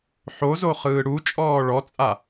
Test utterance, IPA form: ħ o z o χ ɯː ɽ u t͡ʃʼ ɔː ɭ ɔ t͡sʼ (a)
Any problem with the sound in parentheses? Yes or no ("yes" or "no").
no